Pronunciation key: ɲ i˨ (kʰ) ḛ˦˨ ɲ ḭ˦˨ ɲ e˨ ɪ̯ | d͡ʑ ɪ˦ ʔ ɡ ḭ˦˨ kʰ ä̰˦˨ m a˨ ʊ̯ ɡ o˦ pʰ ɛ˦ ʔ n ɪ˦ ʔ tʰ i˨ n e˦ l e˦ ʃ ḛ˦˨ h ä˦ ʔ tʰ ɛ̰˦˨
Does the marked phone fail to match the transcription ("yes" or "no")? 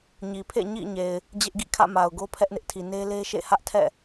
yes